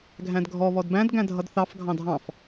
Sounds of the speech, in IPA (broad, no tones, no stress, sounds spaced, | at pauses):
ɡʱ æ̃ d ɡʱ ɔ β ɔ d b æ̃ d ɡ æ̃ dʱ ʌ d θ ɑ f ɡʱ ɑ̃ dʱ ɑ̃ f